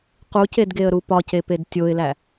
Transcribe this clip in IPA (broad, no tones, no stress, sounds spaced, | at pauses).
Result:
q u c e d ɡ e ə̯ ɾ u p ɒ c e p e d tʲ o ɪ̯ l æ